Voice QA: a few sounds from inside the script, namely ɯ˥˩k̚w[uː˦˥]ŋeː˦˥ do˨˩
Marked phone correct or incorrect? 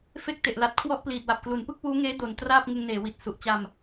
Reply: correct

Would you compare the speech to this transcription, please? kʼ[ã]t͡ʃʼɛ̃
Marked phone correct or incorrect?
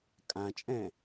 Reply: correct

